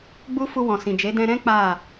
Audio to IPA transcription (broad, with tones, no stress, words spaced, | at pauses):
ɡ͡bu˦ fu˧wɔ̃˨sĩ˨ d͡ʒe˨˦ dɛ̃˧ɾɛ̃˦ k͡pa˦˨